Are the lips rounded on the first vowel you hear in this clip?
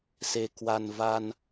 no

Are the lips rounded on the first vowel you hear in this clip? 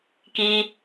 no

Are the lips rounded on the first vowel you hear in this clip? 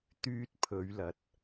yes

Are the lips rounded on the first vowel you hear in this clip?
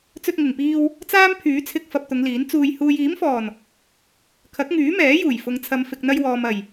yes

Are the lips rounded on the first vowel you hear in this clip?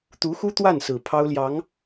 yes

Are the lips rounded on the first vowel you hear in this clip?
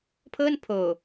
no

